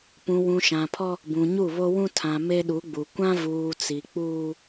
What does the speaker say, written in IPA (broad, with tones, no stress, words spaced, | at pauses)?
pũ˨wũ˨ʃã˨pʰɔ˦ | bũ˨ɲu˦˨βo˦wũ˦ tʰã˨ me˦ɗu˨˦ɡ͡bu˨ kʷã˦vuː˨ t͡si˨ k͡puː˦